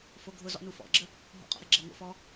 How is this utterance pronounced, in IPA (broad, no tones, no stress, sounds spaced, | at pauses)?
f o ɡʱ ʊ z ɔ̰ n u f ɔ̰ ɡ͡ǁ ə | ɦ ɔ̰ qʼ ɔ̰ ɾ ɘ ɡ͡ǁ ɘ ŋ o̰ f ɔ